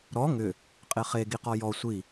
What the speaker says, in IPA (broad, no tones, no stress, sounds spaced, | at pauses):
ɾ ɔ ŋ ʏ | qʼ e χ e ɡ i q ɔ j ɔ sʷ i